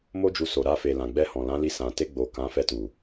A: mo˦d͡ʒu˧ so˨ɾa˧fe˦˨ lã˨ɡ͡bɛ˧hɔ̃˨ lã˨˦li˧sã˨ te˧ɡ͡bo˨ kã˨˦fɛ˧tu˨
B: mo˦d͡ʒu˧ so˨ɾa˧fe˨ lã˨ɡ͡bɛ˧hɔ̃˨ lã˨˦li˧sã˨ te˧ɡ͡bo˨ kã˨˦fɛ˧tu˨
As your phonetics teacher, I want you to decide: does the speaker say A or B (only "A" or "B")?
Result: B